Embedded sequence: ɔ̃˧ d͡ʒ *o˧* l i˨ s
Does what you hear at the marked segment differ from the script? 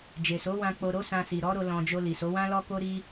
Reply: no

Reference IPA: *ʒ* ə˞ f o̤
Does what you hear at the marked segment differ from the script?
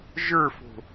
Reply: no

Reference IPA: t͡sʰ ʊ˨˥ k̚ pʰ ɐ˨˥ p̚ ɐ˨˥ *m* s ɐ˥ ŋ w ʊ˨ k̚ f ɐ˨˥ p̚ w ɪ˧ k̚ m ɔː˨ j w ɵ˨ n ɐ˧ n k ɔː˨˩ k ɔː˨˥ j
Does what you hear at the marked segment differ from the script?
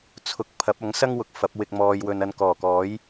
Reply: yes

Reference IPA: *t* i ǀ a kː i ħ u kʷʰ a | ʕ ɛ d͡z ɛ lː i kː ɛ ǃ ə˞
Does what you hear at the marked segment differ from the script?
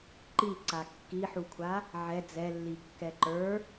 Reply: yes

